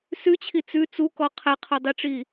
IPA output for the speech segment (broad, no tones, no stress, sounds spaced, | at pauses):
s ʉ t͡ɕʰ i t͡s ʉ t͡s u k ɔ qʰ ɛ qʰ o dˤ i ʈ͡ʂ i